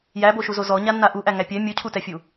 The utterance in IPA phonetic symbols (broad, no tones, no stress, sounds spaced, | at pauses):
j æ b o ʃ u z o z ɔ ɲ a nː a ʔ u ʔ æ ŋ æ pʲ ɛ mʲ u cʰ u t ɛ fʲ u